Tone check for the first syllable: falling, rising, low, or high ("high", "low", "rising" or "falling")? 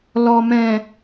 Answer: low